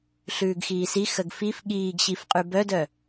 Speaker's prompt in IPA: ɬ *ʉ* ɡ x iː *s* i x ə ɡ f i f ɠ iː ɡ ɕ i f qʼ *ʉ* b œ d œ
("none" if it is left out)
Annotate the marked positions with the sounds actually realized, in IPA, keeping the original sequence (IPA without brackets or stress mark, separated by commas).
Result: ʉː, s, ʉ